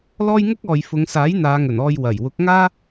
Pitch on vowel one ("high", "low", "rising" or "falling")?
high